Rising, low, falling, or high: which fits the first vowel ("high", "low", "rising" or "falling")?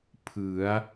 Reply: rising